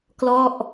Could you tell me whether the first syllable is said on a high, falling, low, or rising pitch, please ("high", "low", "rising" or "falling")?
falling